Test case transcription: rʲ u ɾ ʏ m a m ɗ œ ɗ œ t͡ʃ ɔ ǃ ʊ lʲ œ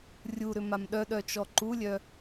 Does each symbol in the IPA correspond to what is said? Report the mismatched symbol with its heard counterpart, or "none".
ʊ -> u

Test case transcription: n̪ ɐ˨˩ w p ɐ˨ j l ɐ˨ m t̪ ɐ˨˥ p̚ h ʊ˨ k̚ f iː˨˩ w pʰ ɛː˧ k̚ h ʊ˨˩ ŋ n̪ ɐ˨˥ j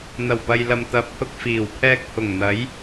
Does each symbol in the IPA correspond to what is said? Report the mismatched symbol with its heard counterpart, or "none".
none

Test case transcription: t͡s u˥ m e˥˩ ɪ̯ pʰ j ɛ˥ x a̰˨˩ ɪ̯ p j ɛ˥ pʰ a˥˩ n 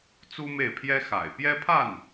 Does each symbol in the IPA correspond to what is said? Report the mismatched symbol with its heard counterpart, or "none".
none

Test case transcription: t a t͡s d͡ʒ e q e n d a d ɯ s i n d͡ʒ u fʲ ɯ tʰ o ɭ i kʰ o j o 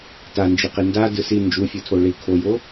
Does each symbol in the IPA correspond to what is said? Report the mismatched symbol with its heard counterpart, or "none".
t͡s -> n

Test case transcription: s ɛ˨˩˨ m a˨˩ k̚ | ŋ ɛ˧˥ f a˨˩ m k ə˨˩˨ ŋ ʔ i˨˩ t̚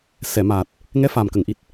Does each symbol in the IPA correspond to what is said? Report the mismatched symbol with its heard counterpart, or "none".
k̚ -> t̚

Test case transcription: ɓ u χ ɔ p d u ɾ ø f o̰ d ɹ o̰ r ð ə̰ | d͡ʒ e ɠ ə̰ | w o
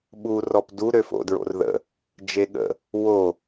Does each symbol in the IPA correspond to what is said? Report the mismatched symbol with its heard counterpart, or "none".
χ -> r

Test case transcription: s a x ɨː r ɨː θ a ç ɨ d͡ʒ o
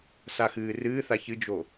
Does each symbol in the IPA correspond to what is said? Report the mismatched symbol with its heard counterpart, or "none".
none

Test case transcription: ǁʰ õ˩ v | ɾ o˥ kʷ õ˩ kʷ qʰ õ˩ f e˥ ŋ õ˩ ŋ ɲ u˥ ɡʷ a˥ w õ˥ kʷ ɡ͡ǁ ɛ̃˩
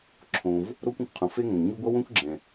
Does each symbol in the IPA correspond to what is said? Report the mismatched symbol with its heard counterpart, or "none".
none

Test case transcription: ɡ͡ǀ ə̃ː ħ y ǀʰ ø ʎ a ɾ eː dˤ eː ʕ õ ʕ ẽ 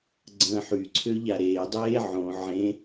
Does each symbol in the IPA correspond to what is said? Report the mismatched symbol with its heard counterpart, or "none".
none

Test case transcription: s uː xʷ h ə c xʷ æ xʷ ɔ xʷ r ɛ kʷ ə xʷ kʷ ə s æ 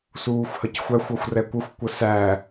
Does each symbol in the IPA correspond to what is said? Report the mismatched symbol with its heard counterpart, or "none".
none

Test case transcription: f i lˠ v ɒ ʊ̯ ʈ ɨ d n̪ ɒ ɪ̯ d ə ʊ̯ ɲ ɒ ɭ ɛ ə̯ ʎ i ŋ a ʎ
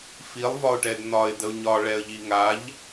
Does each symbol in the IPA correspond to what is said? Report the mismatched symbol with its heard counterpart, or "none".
ɨ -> ɛ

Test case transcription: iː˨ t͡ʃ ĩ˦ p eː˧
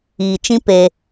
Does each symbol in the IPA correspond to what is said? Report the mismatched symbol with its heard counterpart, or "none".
none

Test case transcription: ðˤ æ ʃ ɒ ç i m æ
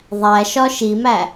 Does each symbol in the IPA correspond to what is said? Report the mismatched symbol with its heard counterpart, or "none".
ç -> ʃ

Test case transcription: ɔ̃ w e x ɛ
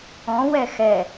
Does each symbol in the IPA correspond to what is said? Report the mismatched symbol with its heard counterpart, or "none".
e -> ɛ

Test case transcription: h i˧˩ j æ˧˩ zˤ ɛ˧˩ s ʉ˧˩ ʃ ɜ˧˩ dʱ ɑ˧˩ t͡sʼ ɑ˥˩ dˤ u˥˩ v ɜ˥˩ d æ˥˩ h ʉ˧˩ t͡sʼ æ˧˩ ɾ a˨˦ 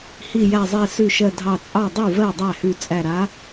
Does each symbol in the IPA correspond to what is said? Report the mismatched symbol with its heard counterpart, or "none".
d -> dˤ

